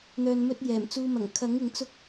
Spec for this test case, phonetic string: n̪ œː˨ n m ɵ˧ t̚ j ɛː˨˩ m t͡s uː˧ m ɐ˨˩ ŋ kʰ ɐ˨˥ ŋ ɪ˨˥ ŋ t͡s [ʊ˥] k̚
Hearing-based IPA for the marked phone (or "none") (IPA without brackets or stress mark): ʊ˥